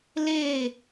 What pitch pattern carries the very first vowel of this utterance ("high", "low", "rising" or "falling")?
falling